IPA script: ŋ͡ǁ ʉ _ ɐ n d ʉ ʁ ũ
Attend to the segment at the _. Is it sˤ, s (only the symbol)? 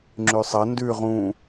sˤ